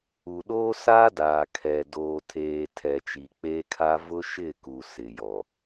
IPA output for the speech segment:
u˨ ɗ oː˦ s a˦ d aː˨ kʰ ɛ˨ d oː˨ tʰ eː˨ tʰ ɛ˨ t͡ʃ i˨ k͡p eː˦ kʰ a˦ v ʊ˦ ʃ ɪ˦˨ k u˨ s ɪ˨ j ɔ˨

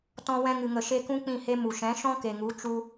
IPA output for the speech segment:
t ɔ̃˧ w ɛ̃˧ ŋ ɨ˨ ŋ ə˨ ʃ e˧ k ũ˦ k͡p ĩ˦˨ h e˦ m u˨ ʃ ɛ̃˨˦ ʃ ɔ̃˦ k e˨ ŋ u˨˦ t͡ʃ u˦

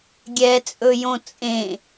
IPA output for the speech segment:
ɡʲ ɛ t͡sʼ ɵ j õ t͡sʼ ẽ

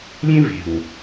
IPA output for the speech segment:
lʲ ẽ˦ v e̤˨ w

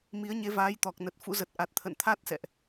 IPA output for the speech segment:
m i˨˦ ə̯ ɲ e˨˦ v aː˨˦ j t̪ ɔ˨˩ k̚ n ə˨˩ t̚ f ṵ˧˥ z ə˨˩ t̚ ʔ a˨˩ t̚ t̪ʰ ə̰˧˨ n t̪ʰ a˦˥ t̚ s ɛ̰˧˨ ʔ

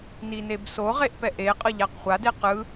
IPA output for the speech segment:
n i n e b s o ʁ e ʔ p ɛ ʔ e qʼ ʌ ʎ a q χʷ a d e q ɯ

